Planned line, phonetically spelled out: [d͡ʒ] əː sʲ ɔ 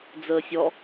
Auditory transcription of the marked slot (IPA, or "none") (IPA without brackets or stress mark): d͡z